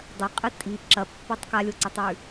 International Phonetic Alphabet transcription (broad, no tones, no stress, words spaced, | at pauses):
dˤɐqʼɨ tʼi ǁɐpːotˤ kalʲoǀatˤwʉ